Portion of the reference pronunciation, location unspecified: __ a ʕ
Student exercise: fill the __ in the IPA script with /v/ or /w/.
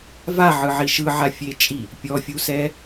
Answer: v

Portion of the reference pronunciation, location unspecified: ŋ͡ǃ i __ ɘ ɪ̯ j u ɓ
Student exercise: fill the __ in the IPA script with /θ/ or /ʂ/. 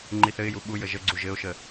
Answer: θ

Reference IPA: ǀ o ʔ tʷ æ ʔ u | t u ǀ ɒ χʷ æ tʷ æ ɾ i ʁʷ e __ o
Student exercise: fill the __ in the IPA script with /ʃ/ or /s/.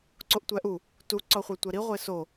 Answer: s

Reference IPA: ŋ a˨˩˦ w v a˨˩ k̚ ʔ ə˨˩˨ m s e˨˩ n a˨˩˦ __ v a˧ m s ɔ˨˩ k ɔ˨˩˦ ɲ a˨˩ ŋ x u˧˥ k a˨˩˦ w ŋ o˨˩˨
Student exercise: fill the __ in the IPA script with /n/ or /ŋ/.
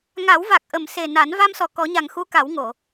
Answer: n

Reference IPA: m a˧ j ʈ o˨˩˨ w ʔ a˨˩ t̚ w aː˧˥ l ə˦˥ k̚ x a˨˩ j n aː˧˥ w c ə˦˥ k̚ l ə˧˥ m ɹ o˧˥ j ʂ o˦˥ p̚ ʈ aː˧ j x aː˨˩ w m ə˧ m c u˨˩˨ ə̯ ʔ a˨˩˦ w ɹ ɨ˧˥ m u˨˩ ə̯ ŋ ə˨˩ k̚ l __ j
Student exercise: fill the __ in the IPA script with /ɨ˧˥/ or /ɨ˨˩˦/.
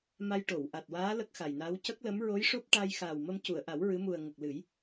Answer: ɨ˨˩˦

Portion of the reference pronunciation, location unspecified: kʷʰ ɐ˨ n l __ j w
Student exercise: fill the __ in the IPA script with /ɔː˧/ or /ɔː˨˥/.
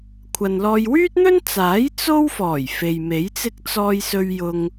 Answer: ɔː˧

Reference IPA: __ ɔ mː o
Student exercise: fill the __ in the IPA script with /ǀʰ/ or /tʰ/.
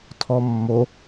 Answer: tʰ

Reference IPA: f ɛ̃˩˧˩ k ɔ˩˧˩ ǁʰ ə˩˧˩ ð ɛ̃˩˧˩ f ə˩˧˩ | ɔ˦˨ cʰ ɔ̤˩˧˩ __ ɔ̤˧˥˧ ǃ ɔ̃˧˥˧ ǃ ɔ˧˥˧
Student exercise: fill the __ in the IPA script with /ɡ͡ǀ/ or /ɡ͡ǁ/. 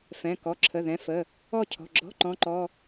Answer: ɡ͡ǁ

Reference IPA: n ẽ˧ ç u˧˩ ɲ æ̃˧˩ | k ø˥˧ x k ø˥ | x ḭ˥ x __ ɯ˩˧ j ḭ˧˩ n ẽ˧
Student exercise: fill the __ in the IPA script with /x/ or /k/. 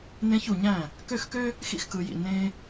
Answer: k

